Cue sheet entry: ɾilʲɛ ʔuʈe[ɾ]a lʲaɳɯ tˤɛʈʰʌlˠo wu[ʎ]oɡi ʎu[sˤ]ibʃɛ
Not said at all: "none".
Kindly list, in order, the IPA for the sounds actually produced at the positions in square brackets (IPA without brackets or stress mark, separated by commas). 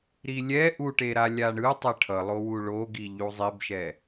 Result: ɾ, ɭ, zˤ